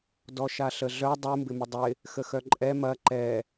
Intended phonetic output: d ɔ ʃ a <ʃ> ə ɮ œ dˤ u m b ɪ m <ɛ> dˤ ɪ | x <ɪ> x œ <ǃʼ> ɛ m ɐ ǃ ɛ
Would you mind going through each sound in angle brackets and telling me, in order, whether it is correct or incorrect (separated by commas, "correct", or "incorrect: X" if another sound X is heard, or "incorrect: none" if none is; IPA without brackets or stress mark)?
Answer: incorrect: ɬ, incorrect: ɪ, incorrect: ə, correct